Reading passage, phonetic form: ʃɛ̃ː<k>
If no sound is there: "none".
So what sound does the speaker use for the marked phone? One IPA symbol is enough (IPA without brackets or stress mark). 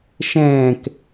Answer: k